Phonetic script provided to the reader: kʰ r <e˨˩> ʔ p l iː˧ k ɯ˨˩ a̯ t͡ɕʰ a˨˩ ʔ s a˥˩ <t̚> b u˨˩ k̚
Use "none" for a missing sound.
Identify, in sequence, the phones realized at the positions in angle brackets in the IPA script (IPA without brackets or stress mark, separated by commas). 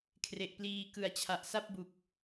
e˨˩, p̚